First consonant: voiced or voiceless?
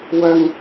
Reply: voiced